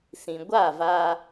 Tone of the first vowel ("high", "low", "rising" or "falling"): low